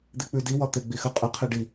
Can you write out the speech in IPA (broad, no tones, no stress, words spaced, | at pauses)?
d̪ik͡pʉ diwɒ t̪eɡ͡bixə qʼə qʰeɖi